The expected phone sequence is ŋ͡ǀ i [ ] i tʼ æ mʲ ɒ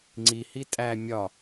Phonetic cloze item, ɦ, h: h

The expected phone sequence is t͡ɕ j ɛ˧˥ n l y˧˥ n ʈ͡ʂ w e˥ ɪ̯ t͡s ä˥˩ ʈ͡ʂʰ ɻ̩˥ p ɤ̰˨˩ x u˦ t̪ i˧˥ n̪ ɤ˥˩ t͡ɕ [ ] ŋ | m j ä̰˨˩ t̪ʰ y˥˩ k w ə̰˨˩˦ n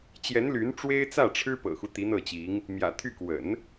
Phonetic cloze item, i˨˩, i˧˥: i˧˥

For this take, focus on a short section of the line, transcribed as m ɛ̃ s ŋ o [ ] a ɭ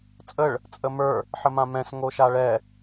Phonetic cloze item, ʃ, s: ʃ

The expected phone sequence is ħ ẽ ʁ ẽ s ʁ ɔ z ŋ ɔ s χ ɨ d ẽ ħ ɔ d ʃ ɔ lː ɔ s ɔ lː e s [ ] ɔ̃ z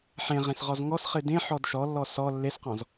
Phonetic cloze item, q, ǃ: q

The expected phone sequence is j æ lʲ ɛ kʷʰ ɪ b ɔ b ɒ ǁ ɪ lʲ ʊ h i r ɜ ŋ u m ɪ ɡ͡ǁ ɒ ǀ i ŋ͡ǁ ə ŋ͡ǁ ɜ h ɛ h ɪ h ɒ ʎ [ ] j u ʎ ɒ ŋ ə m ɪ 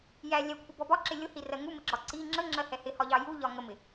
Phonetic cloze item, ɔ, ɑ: ɑ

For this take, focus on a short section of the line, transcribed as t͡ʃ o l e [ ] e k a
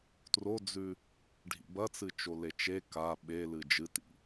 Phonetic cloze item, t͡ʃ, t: t͡ʃ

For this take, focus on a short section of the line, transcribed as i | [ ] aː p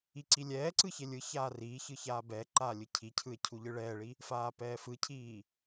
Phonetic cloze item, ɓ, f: f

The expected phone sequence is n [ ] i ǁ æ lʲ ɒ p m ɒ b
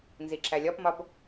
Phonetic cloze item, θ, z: z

